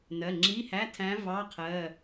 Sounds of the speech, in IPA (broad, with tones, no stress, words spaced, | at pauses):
nɜ˩˧˩ŋ͡ǁi˧˥˧hæ˧˥˧tʰæ̃˧˥ vɑ˧˥˧qʰɜ˩˧˩